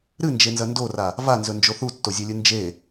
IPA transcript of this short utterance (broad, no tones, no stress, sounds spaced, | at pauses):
ɾ ɨ n d͡ʒ e n z ɐ n d o r a | v a n z ɵ n d͡ʒ o θ u tː o zʲ e lʲ ɨ n d͡ʒ e